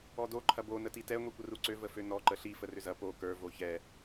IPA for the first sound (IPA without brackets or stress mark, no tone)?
ɔ